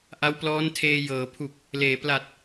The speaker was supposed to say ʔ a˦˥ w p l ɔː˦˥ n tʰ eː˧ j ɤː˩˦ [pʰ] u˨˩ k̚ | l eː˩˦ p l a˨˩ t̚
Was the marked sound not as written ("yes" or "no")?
no